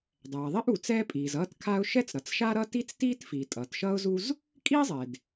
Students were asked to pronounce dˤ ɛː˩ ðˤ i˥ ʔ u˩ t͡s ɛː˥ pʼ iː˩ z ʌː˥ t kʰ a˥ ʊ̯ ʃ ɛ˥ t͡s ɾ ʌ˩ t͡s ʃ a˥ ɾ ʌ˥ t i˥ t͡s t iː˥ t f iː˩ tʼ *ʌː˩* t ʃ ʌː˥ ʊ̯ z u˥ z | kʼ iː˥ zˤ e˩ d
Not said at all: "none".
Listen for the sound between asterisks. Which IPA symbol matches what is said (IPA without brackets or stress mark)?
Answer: ʌː˩